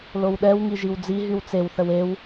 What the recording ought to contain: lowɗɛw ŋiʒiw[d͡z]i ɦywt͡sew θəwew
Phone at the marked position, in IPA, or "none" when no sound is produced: d͡z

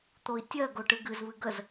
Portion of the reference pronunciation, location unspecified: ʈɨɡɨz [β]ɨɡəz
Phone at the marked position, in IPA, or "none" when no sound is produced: β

